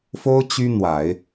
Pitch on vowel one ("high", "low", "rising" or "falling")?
high